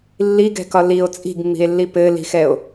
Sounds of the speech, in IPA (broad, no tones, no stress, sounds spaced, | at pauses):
lː i ɡ ɛ̤ k ɒ l i o̯ t͡sʼ i̤ ɡ mː i̤ e̯ lː i p ɘ l i̤ x ɛ o̯